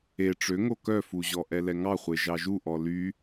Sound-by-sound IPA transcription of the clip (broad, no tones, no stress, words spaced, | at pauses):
e ʈ͡ʂøŋo kœfuʑɔ ʔɛlɛŋɑ χʷeʒɑʒu ʔɔly